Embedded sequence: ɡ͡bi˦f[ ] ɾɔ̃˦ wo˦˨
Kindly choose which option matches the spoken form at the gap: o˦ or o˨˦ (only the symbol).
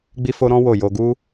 o˦